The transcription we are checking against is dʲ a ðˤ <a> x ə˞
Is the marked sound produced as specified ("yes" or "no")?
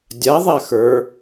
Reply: yes